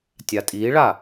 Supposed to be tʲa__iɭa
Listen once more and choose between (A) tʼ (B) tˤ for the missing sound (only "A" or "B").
A